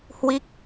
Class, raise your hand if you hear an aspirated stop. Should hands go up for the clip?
no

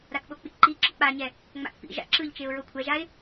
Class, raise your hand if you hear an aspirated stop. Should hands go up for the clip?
yes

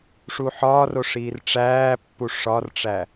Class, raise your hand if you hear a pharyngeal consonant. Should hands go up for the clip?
yes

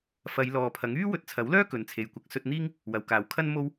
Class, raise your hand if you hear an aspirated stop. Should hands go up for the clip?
yes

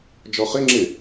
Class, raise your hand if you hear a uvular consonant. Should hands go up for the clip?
yes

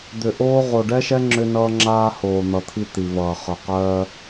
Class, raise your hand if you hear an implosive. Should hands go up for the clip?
no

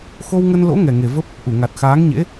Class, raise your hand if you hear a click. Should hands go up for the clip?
no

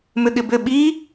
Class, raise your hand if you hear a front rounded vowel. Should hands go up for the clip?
yes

